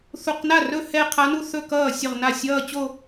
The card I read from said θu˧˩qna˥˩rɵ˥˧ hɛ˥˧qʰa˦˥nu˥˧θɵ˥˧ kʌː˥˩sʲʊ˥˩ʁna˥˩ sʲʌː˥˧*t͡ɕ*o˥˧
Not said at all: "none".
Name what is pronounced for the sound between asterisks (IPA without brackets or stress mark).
t͡ɕ